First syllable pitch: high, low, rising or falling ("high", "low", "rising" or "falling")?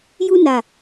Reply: high